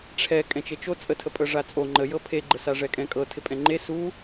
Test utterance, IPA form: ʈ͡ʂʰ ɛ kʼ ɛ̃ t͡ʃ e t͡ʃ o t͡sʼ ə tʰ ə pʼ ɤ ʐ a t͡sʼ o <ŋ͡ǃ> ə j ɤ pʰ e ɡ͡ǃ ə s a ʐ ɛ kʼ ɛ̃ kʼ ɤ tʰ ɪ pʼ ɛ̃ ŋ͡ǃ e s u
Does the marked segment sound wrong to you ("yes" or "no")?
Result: no